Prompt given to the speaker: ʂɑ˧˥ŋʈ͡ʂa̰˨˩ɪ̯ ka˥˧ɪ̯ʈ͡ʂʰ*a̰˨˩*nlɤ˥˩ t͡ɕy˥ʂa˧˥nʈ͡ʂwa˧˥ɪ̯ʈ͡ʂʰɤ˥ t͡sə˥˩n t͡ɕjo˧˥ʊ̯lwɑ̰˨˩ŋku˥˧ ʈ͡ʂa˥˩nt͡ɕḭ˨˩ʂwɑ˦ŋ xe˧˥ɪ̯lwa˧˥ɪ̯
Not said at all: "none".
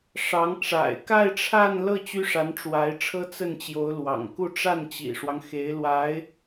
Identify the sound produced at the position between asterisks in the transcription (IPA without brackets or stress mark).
a˥˧